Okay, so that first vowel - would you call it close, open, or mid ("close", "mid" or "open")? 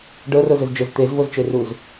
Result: mid